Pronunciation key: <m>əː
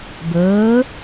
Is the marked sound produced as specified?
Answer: no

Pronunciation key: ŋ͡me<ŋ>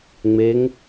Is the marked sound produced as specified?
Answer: yes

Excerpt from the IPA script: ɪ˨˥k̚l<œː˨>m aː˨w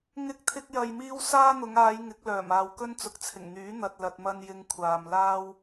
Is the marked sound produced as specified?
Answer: no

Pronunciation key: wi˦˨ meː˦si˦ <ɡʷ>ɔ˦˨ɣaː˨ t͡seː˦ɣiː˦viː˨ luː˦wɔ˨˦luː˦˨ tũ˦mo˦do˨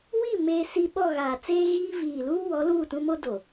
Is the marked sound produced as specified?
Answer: no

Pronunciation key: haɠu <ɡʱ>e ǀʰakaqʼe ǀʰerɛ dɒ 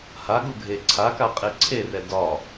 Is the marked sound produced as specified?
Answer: yes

